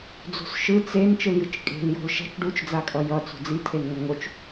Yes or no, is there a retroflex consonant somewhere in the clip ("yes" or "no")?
yes